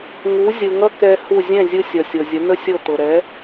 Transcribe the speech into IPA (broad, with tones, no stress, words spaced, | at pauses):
ŋu˩˥ zʲɯ˩ ŋʌ˥ kɛ˧ hu˥˩ zʲɛ̃˥˩zʲɯ˧sʲʌ˩sʲɤ˩ zʲə˩˥nə˥sʲɤ˥˩ t̪ɤ˩ɾɛ˩˥